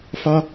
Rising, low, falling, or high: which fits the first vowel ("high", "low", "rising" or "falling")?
high